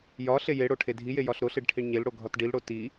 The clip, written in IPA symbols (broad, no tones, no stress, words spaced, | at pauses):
jɒ ɬejeɽo ʈʰedʱije jɒɬɾoɬeɖ ʈʰiɳɲelɽo ɡʱɒtɖilɽo ti